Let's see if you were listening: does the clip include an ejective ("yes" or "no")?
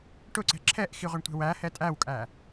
yes